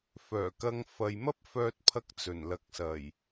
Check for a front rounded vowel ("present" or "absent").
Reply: present